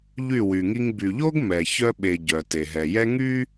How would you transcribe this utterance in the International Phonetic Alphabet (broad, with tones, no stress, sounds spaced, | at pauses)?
ʎ y˦˨ w y˨ ŋ i˦ ŋ b y˨ ʎ o˦ ɡ m ɛ˨ ç œ˦ ɓ e˨ ɟ œ˨ t e˨ ɦ ɛ˨ j ɛ˦ ŋ y˦